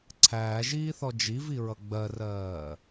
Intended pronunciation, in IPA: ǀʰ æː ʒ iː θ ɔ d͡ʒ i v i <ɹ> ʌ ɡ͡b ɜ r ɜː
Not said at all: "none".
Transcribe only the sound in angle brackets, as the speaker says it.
ɹ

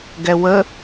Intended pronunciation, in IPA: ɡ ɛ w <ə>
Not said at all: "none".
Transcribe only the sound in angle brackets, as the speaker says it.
ə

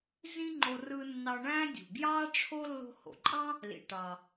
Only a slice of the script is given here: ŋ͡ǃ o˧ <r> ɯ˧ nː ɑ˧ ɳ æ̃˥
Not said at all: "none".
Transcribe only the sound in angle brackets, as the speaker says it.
r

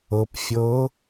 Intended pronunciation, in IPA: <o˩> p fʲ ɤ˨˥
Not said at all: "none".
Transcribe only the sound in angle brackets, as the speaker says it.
ɤ˩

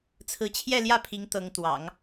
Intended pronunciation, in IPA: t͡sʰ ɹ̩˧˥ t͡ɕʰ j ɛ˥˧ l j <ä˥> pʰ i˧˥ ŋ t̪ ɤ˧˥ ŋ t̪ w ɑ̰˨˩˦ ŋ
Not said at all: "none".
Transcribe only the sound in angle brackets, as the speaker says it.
ä˥˩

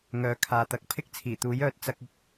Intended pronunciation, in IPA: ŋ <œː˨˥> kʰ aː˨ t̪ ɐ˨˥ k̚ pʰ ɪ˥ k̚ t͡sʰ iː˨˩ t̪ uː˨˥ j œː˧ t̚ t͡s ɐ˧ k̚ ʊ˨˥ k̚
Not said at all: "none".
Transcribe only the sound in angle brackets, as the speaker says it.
œː˨˥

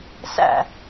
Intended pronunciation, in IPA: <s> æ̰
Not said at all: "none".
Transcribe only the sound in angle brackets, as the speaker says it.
s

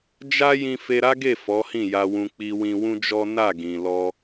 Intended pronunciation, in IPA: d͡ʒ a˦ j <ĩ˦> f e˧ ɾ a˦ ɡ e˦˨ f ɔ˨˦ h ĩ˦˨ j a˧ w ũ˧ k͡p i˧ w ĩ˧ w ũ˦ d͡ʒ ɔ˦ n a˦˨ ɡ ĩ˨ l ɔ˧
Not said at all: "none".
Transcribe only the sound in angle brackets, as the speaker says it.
ĩ˧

